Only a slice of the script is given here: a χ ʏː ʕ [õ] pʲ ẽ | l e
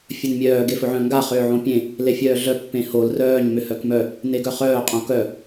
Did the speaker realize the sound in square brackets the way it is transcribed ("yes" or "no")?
yes